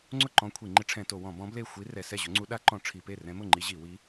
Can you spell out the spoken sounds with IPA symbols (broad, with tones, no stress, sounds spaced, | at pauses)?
ŋ͡ǀ ʊ˥˩ ǃ ɔ̃˧˥ kʷʰ i˧˩˧ ŋ͡ǃ ɪ˧˥ ʈ͡ʂʰ ɛ̃˧˩˧ t o˧˩˧ w ɔ̃˧˩˧ b ɔ̃˧˥ b l e˥˩ xʷ i˧˥ r ɛ˧˩˧ s ɛ˥˩ ʑ ʊ˧˥ ŋ͡ǀ u˧˥ ɗ a˧˥ ǃ ɔ̃˧˩˧ ʈ͡ʂʰ i˧˩˧ p e˥˩ r ɛ̃˧˥ m ʊ˥˩ ŋ͡ǃ i˧˥ ʑ i˧˩˧ w i˧˥